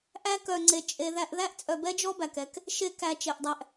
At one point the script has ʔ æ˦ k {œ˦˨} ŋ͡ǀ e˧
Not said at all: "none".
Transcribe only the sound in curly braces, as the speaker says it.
œ˧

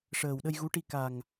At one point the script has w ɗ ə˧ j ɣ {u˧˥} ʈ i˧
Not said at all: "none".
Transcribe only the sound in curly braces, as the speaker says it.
u˧˥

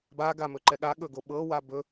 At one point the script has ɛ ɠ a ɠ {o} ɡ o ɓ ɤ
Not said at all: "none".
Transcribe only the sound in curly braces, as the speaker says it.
ɵ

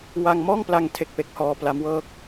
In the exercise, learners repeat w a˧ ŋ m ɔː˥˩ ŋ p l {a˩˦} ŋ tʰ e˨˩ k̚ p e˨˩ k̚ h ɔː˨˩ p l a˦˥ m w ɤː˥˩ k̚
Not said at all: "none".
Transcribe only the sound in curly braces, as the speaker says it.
a˧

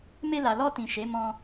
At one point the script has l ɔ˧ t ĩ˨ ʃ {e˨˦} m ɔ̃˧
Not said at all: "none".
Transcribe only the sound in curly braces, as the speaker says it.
e˨˦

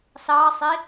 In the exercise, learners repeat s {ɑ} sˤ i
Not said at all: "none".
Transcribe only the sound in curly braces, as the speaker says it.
ɑ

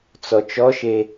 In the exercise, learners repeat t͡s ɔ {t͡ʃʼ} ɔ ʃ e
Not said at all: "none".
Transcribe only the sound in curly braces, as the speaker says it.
t͡ʃ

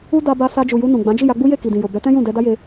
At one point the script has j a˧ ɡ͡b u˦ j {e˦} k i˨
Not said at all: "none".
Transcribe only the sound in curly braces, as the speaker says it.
e˦˨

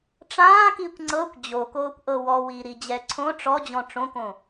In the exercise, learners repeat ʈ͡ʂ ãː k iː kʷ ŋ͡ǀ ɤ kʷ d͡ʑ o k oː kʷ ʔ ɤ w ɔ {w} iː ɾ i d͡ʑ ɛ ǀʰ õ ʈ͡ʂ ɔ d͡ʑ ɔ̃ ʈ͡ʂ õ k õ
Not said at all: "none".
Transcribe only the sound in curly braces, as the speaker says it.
w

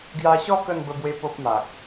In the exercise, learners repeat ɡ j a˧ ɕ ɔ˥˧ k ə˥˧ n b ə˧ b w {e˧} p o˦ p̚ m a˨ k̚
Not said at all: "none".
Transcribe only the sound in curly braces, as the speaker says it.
e˧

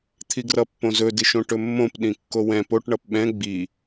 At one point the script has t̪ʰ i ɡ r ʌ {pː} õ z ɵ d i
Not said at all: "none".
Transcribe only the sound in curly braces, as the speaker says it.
pː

